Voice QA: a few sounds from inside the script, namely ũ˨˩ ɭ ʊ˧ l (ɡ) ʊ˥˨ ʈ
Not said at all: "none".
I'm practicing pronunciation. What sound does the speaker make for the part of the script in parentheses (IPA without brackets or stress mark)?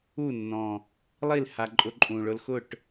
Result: x